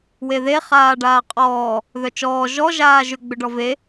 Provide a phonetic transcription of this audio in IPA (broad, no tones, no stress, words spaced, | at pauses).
weðe χaːɖaːqʼɔː | ðœt͡ʃɔː ʒɔ ʒaːʒʏ ɡ͡bʏɖɔve